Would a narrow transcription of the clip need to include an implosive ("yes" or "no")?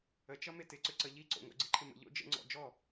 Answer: no